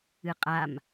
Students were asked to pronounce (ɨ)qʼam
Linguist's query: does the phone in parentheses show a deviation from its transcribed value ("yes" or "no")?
no